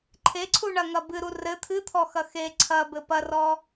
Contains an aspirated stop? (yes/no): yes